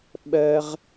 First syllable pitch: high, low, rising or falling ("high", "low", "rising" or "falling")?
high